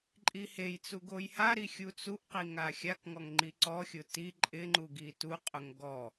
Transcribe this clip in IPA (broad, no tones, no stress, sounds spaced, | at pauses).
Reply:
ǃʼ i h e j t͡s u ɡ o j h a ɾ i xʲ u t͡s u ʔ q i ŋ a xʲ a k ŋ ɔ ŋ ŋ͡ǃ i ǀ ɔ xʲ ʊ t i ǃʼ ɪ ŋ͡ǃ u ɡ i t u qʼ ʊ ŋ ɡ ɔ